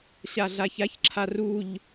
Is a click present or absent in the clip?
present